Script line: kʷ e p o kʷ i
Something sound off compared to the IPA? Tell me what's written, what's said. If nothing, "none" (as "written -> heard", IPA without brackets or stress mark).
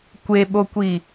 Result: p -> ɓ